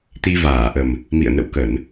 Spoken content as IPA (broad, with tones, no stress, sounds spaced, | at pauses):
t̪ i˧ v aː˧˩ ʔ ə˨˩ m | m ḭ˧˨ ə̯ n ə̰˧˨ w k ə˧˩˨ n